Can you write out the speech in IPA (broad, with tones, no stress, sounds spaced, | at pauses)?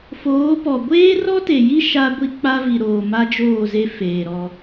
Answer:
f oː˨˦ p ɔ˨ ɡʷ eː˦ r ɔ˦ t e˨ j i˦ ʃ a˦ ɡʷ i˦ k͡p a˦ v i˨ ɾ oː˨ m a˦ d͡ʒ oː˦˨ z e˦ f eː˨ ɾ ɔ˦